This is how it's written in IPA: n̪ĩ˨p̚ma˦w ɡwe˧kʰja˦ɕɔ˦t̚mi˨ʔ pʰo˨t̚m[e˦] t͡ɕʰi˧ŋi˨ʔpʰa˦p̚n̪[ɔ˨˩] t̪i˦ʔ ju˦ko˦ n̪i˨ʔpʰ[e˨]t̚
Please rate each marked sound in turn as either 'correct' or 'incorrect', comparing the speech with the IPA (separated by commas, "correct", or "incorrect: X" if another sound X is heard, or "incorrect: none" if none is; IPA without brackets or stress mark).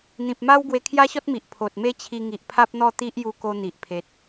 correct, incorrect: ɔ˥˧, correct